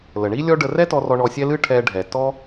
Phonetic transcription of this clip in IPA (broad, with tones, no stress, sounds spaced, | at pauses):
l ə˩ ɳ i˥ lʲ ɔ˥ ɖ ə˧ r ɛ˥ t ɔ˧ r ɔ˧ ɳ ɔ˧ sʲ ɛ˥ l ɨ˥ ʈʰ ɛ˧ ɖʱ ɛ˩ t ɔ˥